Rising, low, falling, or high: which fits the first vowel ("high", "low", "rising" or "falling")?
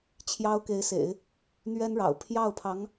high